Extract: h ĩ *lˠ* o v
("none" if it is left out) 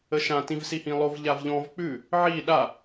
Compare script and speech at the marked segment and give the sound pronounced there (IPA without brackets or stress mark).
lˠ